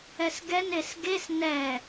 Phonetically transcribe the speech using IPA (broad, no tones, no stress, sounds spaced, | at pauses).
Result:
ɛ s ɡ ɛ n e s ɡ e s n ɛ